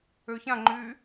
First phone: ø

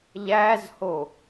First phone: ʎ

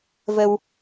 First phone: v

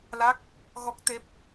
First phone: l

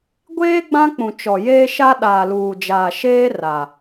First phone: ɡʷ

